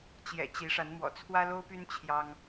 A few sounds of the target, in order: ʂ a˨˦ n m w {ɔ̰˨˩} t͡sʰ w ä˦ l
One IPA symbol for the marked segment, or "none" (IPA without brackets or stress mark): ɔ̰˨˩